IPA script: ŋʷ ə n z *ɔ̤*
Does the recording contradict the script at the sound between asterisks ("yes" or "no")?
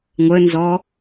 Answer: yes